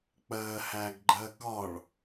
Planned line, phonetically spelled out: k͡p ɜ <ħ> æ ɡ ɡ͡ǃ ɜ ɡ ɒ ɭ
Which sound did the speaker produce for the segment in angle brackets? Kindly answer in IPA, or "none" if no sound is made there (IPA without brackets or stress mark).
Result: h